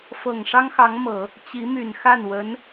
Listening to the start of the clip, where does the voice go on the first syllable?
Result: low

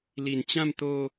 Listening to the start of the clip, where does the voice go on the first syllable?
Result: low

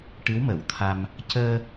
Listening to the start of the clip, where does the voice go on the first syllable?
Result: rising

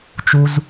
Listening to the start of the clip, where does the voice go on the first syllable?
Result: low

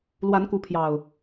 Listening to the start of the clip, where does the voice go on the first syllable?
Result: rising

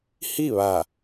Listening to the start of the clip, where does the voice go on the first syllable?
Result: falling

